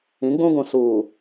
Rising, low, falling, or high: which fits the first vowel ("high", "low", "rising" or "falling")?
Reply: rising